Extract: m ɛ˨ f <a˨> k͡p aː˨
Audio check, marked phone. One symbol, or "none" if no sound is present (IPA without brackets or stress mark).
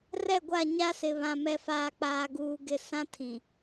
aː˨